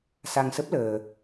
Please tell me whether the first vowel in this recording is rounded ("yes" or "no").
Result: no